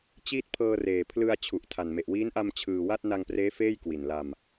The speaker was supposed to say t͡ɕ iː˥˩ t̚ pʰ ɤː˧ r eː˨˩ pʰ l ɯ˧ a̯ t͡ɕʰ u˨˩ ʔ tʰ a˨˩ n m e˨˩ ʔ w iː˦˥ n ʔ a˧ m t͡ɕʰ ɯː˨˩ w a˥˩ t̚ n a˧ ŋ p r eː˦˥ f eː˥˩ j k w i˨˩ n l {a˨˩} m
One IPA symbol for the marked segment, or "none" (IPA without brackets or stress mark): a˧